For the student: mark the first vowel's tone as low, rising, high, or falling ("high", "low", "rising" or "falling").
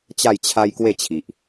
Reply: falling